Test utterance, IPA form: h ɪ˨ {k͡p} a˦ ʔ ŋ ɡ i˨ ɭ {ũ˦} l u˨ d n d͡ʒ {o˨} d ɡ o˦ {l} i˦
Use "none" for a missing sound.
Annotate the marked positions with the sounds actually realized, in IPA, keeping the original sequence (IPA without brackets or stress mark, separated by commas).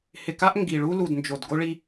k, u˦, o˨, ɭ